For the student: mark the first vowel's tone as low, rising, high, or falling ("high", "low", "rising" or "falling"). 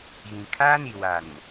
low